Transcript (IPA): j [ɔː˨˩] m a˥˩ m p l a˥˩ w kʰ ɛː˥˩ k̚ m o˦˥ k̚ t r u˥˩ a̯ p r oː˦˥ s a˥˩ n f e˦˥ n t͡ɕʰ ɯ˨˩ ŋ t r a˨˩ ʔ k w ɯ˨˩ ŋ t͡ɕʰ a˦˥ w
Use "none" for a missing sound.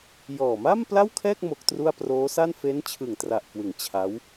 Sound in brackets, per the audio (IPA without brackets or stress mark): ɔː˨˩